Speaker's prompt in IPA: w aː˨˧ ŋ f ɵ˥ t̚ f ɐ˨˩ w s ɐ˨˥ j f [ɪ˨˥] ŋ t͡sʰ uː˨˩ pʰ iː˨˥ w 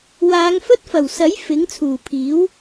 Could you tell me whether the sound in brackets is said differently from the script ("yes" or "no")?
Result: no